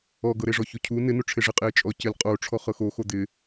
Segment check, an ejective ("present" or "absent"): present